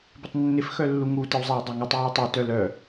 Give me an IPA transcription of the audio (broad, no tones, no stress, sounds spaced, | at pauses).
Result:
b ɪ tˤ nː ɪ f x œ lː u ŋ u t ɪ w zˤ e w dˤ e ŋ u tˤ j œ w tˤ e t œ l œ